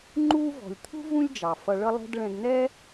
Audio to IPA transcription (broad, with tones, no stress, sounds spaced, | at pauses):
ŋ͡ǃ uː˥ v ɔ̤˩ lʲ t̪ʰ ṳ˥ v ũ˥ lʲ d͡ʒ ɑ˩ f ʌ˧ ɭ ʌ˥ lˠ ɛ̤˥ d ɭ ɛ̃˧ ɡ n̪ ɛː˥